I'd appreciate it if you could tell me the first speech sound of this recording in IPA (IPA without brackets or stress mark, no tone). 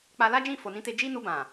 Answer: k͡p